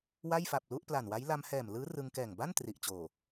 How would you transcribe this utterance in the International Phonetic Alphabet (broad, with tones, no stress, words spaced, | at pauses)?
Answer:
wa˥˩jfa˨˩p̚lu˥˩ʔ pla˨˩nwa˦˥j la˧mhɛː˨˩mlɯː˦˥ rɯ˧ŋkɛː˨˩ŋ ba˥˩n tri˨˩ʔt͡ɕoː˨˩